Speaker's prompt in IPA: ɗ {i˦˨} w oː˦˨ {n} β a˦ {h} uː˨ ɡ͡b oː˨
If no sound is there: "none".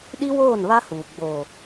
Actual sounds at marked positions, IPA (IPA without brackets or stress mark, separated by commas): i˦, n, h